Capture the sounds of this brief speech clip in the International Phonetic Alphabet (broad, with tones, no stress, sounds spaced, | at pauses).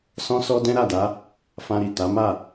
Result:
s ɔ̃˧ s ɔ˧ d ɛ̃˦ ɾ a˦˨ d a˨˦ | f ã˧ ɾ i˨ t a˨˦ m a˦˨